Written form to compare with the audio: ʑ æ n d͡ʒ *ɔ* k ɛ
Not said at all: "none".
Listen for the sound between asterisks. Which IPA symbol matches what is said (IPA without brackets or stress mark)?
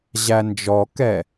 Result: ɔ